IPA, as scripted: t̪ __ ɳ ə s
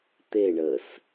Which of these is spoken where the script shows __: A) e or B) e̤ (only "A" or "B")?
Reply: A